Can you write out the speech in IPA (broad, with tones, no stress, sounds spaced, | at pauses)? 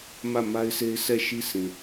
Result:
m ä˦˨ m a˦ ɪ̯ s e˦ ɪ̯ s ɛ˦˨ ʃ i˦ sʰ ĩ˨